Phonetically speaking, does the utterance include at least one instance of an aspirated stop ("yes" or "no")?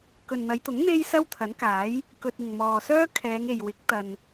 yes